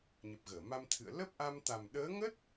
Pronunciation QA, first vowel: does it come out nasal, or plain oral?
oral